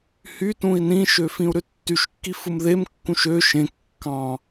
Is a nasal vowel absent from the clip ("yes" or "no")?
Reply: no